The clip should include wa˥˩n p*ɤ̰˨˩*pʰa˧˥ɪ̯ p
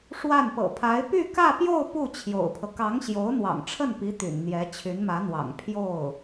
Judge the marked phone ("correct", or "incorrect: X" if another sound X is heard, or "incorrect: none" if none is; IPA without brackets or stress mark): correct